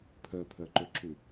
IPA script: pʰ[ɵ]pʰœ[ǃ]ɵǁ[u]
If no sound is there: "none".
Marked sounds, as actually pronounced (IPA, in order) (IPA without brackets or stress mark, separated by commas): œ, ǃ, u